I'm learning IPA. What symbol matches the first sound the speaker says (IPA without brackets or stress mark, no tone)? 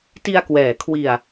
t